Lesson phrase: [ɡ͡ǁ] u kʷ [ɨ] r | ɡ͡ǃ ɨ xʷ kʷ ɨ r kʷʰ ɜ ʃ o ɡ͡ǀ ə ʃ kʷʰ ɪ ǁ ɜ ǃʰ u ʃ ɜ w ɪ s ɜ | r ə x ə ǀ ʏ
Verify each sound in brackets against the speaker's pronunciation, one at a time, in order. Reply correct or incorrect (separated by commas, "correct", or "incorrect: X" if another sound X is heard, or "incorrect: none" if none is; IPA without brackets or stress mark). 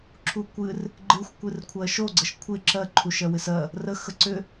incorrect: ǁʰ, correct